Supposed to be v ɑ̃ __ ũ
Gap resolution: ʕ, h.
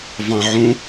ʕ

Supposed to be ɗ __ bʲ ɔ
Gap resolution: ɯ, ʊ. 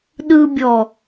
ɯ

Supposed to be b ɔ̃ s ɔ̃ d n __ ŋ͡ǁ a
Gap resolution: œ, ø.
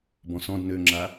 ø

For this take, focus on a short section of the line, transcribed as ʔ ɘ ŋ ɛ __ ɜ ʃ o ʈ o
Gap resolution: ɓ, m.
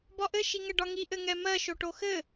m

